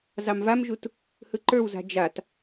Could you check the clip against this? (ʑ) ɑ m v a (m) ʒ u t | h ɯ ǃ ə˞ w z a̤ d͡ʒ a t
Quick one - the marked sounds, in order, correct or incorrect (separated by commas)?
incorrect, correct